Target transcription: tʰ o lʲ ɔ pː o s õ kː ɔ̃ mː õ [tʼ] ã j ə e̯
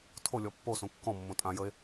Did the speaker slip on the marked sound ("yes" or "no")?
no